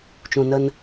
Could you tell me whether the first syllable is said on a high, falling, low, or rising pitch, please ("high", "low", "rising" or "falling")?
low